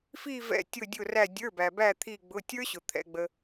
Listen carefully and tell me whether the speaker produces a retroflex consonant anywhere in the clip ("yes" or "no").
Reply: no